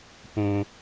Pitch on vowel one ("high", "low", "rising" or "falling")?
low